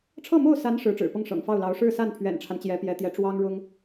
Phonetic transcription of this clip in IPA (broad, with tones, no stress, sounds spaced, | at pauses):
ʈ͡ʂʰ ɤ˥˧ m o˥˩ ʊ̯ s a˧˥ n ʂ ɻ̩˧˥ ʈ͡ʂ ɻ̩˨˩ p ɤ˥˩ ŋ ʂ ɤ̰˨˩ ŋ f ɑ˥˩ ʊ̯ l ɑ˧˥ ʊ̯ ʂ ɻ̩˥˧ s a˥˩ n pʰ ɥ ɛ̰˨˩ n ʈ͡ʂʰ a˦ n t͡ɕ j ɛ˧˥ p j ɛ˧˥ t̪ j ɛ˧˥ ʈ͡ʂ w ɑ˥ ŋ ɻ ʊ˥ ŋ